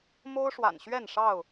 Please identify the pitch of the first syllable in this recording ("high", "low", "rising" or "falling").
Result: high